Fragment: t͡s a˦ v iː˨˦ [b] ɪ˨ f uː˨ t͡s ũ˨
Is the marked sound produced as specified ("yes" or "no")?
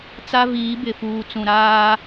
yes